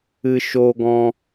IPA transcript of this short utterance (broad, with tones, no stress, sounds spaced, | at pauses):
ɨ˧ ʃ oː˧ ɡ ɔ̃˧